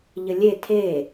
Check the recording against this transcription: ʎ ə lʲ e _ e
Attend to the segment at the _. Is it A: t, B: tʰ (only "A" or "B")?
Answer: B